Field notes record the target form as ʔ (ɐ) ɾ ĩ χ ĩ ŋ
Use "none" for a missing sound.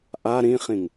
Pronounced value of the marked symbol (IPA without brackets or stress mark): a